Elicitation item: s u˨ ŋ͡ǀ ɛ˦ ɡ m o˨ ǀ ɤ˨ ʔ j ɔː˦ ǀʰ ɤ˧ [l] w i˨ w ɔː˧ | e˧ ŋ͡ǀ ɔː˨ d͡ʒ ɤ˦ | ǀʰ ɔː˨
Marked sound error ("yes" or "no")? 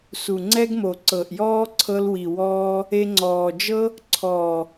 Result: no